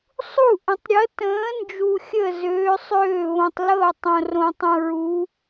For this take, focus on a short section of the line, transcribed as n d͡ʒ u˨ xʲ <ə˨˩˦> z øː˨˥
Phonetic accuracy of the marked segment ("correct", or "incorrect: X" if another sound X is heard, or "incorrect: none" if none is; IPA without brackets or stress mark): incorrect: ə˥˩